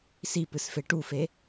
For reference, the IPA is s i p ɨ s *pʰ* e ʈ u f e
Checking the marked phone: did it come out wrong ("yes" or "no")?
yes